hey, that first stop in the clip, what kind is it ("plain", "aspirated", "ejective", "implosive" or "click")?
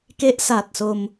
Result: plain